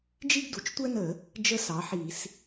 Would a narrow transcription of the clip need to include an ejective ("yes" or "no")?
no